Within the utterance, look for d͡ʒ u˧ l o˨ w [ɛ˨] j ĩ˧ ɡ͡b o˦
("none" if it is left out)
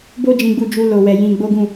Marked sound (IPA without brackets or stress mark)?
ɛ˨